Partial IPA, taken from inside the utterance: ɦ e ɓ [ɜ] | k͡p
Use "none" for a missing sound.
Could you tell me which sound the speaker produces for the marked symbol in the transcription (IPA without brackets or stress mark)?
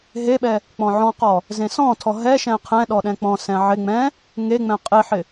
ɛ